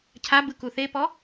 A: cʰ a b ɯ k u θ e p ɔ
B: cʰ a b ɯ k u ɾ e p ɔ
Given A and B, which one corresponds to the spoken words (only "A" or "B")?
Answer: A